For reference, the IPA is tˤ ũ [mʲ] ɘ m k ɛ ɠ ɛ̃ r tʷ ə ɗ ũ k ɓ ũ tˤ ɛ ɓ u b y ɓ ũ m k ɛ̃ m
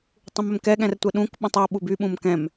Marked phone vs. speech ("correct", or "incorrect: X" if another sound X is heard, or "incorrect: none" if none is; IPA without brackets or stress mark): incorrect: m